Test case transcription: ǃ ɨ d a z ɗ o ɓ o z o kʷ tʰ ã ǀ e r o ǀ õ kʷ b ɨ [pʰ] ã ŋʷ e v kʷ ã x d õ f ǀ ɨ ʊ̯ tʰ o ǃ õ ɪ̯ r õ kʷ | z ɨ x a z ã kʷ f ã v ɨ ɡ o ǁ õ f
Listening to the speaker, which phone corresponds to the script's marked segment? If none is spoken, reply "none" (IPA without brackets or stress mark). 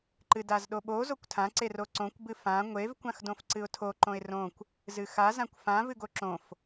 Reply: f